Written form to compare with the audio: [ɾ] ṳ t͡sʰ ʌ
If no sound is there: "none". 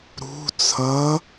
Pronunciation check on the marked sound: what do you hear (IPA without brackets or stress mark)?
ɾ